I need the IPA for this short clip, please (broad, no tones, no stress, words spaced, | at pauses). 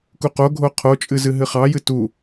kuqoɡʱo qʰot͡ʃʼɨ zɨɦɨχɑjɨ tu